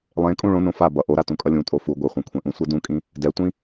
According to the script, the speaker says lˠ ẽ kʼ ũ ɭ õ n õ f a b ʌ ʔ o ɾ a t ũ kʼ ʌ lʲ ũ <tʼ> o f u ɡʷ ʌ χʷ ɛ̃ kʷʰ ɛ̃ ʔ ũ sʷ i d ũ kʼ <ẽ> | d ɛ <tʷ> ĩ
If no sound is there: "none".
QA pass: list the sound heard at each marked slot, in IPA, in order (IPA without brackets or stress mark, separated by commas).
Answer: tʼ, ĩ, tʷ